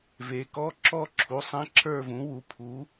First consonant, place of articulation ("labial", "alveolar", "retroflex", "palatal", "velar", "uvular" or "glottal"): labial